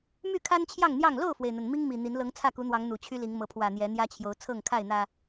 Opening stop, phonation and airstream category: aspirated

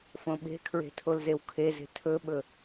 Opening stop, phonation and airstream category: implosive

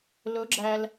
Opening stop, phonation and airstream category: click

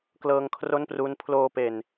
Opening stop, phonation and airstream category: plain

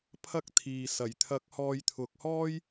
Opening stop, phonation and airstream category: aspirated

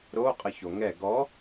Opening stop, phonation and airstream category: ejective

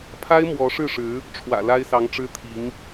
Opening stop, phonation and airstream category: aspirated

